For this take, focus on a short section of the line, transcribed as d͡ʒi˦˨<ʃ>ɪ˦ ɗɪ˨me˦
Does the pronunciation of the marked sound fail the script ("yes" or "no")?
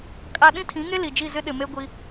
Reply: yes